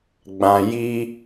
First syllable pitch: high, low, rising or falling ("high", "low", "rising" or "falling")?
low